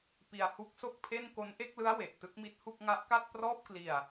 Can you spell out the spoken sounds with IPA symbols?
p i˧ a̯ h u˦˥ k̚ s o˥˩ k̚ pʰ e˥˩ n k o˦˥ n ʔ e˥˩ k̚ l ɯ˦˥ a̯ w e˨˩ ʔ t ɯ˥˩ k̚ m i˥˩ t̚ h u˥˩ k̚ ŋ a˦˥ ʔ k a˥˩ t̚ p r ɔː˥˩ p̚ k l i˧ a̯

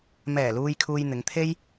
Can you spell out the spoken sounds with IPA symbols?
m ɛː˨˩ l uː˨ j kʰ uː˨ j n̪ ɪ˨˧ ŋ t̪ʰ e˥ j

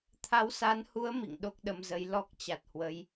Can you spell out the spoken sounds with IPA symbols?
t̪ʰ a˨˦ w s a˨˦ n h u˨˦ ə̯ m ḭ˧˨ ŋ ɗ o˦˥ k̚ ɗ ə˧ m z ə˨˦ j l ɔ˦˥ k̚ t͡ɕ a˨˩ t̚ h w ə˨˦ j

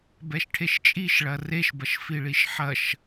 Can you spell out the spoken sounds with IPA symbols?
b ɛ ʃ ʈʰ e ʃ t͡ʃʼ i ʃ ɭ ɐ r e ʃ b ɐ ʃ f i ɭ i ʃ ħ ɐ ʃ

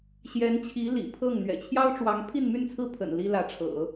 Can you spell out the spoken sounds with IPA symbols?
ɕ j ɛ˧˥ n t͡ɕʰ i˧˥ l ḭ˨˩ pʰ ɤ˥˩ ŋ n̪ ɥ ɛ̰˨˩ t͡ɕʰ j ɑ˥ ʊ̯ ʈ͡ʂ w ɑ˧˥ ŋ pʰ i˥˧ n m y˥˧ n t͡sʰ ɹ̩˥˩ pʰ ə̰˨˩ n l i˥ l ä˧˥ ʈ͡ʂʰ ɤ̰˨˩˦

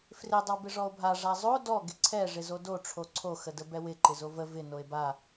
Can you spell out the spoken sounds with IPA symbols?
f r ɪ dˤ ə w b ɪ ʐ ɔ o̯ bʱ a ʐ a zˤ o d ɔ ɡ ɪ ǀʰ ɛ ʐ ɪ z o d o ʈ͡ʂʰ o ǀʰ o x ə d ə b ɛ w ɪ ǃ ɪ z o v ə v ɪ n o e̯ b a

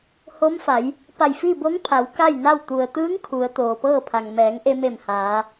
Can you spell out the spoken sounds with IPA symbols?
h o˧˥ m f a˩˧ j | p a˧˩ j f i˥˨ b o˧˥ ŋ pʰ a˩˧ w k a˥˨ j n a˥˨ w t̪ u˩ ə̯ t̪ ɯː˧˥ ŋ kʰ u˩˧ ə̯ t̪ oː˩ p ɤː˥˨ pʰ a˩ ŋ m ɛː˩˧ ŋ ʔ e˧ m e˧˩ m h aː˩˧

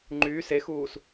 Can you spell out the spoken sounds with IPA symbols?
ŋ͡ǃ yː s e x uː s

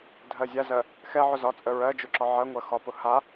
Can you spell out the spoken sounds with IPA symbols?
dʱ ɜ zʲ a z ɜ | x ɛ ʕ ʊ z ɒ t͡sʼ ə ɹ ɜ d͡ʒ ʊ ǁ ɒ ʕ ɜ ŋʷ ɜ x ɒ p ʊ h a

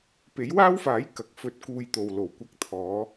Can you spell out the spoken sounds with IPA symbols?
p e˨˥ j w aː˥ w f aː˨˥ j k ɐ˨ k̚ f ɵ˧ t̚ k uː˧ j t̪ o˨ w l o˨˩ w kʷ ɐ˧ k̚ t̪ʰ ɔː˨˧

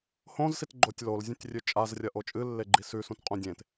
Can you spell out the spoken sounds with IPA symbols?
h õ z s i t ɡ͡ǃ o tʲ l o l zʲ ũ tʲ rʲ ʉ t͡ʃʼ a z rʲ ɐ ʔ o t͡ʃʼ ɨ lː e ɡ͡ǃ i s ʉ s ũ t qʼ ũ dʲ ẽ t

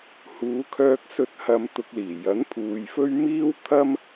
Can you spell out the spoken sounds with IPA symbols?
h uː˨˧ kʰ œː˧ k̚ s ɵ˧ t̚ h ɐ˧ m t̪ ʊ˧ k̚ l iː˨˩ j ɐ˨˥ n pʰ uː˨ j f ɵ˥ ɥ m iː˥ w t̪ʰ ɐ˥ m

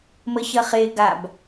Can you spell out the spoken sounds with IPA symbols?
m ə ç ɐ χ e ɡ a b

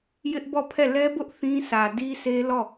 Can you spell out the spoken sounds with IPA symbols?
j ɪ˦ ʔ b ɔ˦˨ pʰ ɛ˦˨ l ɛ˦ b ʊ˦ ʔ θ ĩ˦ sʰ ä˨ d i˦ sʰ e˦ l ɔ˦˨

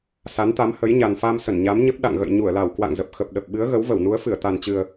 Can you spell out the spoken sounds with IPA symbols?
s a˨˦ n t̪ a˨˦ m h ə˨˦ j ɲ a˨˩ n f a˧ m s ə˧˩ n ɲ a˨˦ m ɲ ə˦˥ p̚ ɗ a̰˧˨ ŋ ɣ ə̰˧˨ j ɲ u˧˩ ə̯ l a˧˩ w k w a̰˧˨ ŋ z ə˨˩ p̚ x ə˨˩ p̚ ɗ ə˨˩ p̚ ɓ ɨ˨˦ ə̯ ɣ ə˨˦ w v ə˧˩ w n u˨˦ ə̯ f ɨ˧˩ ə̯ t̪ a˨˩ n t͡ɕ ɨ˨˩ ə̯

